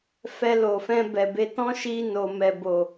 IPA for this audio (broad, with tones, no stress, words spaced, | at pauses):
fɛ˧lo˨fɛ̃˧ bɛ˨ be˧ tɔ̃˦ʃi˧ no˨mɛ˨bo˨